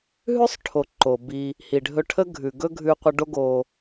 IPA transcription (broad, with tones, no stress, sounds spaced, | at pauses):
ɦ ʉ˦ sˤ ʈʰ o˨ ǃ o˨ b i˧ | h i˨ ɖʱ ɵ˧ ʈʰ ə˦ ɡʱ ʉ˨ ɡ ɵ˦ ɡʱ ʉ˧ qʷ ə˧ ɖ o˦ ɡ o˧